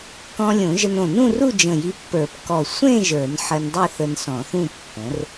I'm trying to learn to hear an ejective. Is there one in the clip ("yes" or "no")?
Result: no